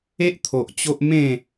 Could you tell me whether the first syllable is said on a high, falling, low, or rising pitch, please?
high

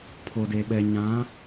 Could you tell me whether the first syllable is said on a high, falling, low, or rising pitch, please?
low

